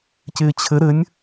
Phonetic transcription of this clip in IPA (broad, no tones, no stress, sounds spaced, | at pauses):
c ɪː t͡ɕʰ ɘ ɾ ɘ nʲ